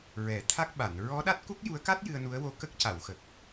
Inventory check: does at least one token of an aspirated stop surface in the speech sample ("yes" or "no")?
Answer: yes